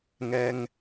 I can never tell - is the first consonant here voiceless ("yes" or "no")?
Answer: no